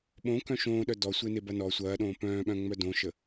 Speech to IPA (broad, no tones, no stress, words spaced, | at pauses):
ɓõkœ̃ ʃõːɗœ dɔsʷenebɐ nɔ sʷɐːɗõː pœ̃ːɓœ̃ŋ͡mœ dõʃə